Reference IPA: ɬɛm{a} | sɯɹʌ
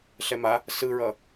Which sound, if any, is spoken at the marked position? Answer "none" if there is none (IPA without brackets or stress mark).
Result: a